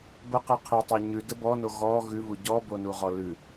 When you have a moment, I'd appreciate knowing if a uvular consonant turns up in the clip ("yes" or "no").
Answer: yes